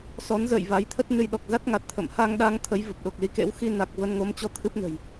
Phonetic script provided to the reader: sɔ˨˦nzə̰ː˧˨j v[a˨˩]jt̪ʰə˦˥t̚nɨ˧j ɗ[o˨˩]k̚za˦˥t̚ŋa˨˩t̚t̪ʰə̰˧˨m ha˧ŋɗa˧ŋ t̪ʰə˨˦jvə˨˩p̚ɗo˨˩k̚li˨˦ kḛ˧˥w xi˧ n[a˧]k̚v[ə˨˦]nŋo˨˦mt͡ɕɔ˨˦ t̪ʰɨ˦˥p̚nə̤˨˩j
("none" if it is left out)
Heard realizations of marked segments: a˨˦, ɔ˨˩, a˨˩, ə˧

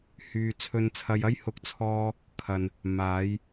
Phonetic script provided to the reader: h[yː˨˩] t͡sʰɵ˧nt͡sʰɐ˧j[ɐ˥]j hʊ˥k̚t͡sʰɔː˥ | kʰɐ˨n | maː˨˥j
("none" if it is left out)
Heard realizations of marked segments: yː˧, ɐ˥

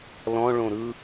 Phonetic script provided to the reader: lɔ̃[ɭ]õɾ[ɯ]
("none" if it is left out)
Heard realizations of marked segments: ɭ, ɯ

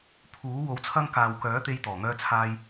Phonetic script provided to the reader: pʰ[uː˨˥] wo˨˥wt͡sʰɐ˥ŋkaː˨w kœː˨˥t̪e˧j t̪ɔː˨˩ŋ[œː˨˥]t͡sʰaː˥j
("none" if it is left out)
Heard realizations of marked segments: uː˨˥, œː˥

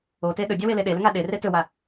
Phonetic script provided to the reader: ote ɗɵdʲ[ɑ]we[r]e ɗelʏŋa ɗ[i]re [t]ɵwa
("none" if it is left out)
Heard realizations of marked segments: a, l, e, t

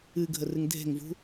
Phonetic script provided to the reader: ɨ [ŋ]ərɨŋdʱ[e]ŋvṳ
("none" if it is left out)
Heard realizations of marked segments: ɡʱ, e̤

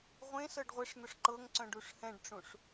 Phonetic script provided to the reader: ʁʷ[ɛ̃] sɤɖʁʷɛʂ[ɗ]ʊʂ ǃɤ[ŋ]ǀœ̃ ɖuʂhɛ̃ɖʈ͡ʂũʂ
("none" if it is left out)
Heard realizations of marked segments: ẽ, n̪, ŋ

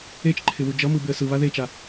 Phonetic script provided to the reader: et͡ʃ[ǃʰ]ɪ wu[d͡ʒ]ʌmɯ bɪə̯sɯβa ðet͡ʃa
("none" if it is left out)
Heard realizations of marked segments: ǃʰ, d͡ʒ

